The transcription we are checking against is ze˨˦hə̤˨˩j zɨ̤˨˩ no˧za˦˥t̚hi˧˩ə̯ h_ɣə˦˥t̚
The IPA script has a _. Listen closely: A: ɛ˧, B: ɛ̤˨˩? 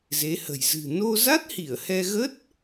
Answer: A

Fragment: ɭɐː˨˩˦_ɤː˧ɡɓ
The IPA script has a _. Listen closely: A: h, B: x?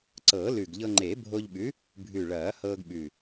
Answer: A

